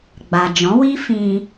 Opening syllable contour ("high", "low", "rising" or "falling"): low